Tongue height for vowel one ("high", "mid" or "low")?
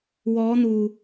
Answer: mid